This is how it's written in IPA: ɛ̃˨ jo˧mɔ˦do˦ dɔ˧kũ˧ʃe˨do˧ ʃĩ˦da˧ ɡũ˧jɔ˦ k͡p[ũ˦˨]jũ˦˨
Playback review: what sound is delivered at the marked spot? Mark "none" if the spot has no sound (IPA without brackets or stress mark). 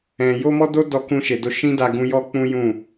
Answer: ũ˦